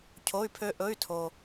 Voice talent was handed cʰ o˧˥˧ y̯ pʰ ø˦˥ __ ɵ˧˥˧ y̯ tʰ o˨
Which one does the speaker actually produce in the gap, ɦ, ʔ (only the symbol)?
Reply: ʔ